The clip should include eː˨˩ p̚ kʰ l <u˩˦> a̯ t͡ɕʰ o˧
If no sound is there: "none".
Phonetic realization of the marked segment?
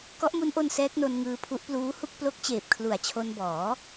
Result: u˨˩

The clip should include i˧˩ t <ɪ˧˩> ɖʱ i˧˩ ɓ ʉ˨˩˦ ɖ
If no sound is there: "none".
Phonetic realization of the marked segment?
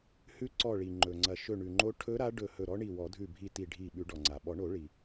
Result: i˧˩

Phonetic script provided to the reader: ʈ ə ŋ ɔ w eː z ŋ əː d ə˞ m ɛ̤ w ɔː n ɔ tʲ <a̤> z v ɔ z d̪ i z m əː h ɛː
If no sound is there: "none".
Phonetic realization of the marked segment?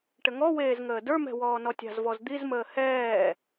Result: a̤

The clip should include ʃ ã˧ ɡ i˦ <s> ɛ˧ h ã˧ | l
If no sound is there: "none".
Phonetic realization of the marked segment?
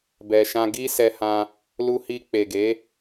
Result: s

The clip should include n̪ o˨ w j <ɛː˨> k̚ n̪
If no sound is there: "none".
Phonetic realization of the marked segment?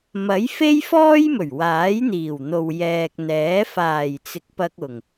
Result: ɛː˨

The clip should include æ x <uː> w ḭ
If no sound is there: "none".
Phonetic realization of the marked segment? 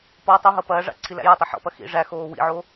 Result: oː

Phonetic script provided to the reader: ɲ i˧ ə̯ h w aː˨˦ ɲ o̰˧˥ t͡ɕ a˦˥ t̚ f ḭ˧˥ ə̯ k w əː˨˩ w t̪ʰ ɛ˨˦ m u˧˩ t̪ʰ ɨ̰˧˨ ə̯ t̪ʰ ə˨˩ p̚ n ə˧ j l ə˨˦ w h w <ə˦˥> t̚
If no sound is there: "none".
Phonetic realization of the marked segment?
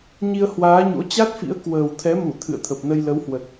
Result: ə˨˩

